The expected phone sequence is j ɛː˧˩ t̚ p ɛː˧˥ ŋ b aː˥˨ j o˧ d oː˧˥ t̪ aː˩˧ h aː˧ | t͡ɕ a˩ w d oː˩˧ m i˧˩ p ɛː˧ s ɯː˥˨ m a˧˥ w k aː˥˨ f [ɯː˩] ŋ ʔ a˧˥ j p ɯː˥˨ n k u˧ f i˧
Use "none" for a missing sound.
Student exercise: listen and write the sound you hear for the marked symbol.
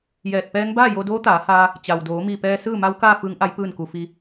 ɯː˧˥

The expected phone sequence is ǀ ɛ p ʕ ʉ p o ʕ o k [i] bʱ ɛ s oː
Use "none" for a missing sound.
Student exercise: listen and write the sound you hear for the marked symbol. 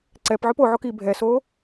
i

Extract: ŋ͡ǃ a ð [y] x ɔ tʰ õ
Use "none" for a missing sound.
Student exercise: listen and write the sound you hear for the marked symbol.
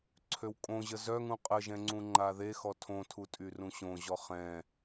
e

